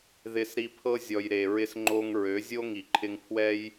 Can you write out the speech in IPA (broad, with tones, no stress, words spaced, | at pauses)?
ðɪ˧sɾi˧pʰɤ˦ zʲɔ˨j ɾe˨ɹɪ˦sŋ͡ǃo˦ŋ ɹø˨˦zʲo˦ŋi˨ ǃʰɪ˧ŋpʰwɛ˦j